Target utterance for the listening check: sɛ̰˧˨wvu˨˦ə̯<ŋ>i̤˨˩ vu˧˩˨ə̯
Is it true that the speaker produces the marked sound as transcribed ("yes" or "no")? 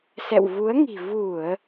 yes